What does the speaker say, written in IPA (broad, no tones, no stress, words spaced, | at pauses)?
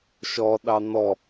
ʃɔ ɗɑn̪ɔ